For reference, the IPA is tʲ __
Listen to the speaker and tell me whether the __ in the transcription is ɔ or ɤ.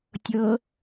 ɤ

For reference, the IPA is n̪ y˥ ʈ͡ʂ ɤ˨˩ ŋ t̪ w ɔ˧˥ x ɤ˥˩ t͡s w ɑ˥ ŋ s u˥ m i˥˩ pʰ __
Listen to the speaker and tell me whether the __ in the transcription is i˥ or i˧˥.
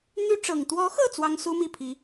i˧˥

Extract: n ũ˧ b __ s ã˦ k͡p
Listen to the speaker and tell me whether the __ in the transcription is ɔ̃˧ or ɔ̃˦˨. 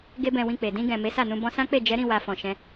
ɔ̃˧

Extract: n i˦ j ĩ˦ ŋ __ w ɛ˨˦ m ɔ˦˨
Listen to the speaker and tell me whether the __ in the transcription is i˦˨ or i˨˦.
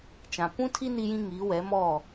i˨˦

